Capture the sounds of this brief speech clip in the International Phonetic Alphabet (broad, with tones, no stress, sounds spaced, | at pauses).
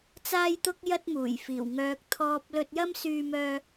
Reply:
t͡s aː˥ j t̪ ʊ˥ k̚ j ɐ˥ t̚ m uː˨˩ j f iː˨˩ w ŋ œː˧ k̚ t̪ʰ ɔː˧ p̚ l ɵ˧ t̚ j ɐ˥ m s yː˧ m œː˧